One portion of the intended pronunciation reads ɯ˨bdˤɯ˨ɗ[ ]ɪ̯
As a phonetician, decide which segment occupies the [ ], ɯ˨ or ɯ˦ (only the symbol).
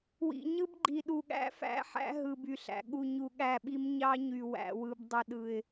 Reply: ɯ˨